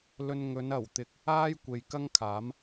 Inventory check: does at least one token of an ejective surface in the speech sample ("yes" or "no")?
no